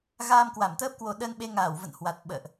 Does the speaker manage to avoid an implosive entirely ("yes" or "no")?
no